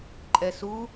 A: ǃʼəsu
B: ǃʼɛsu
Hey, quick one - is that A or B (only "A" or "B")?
B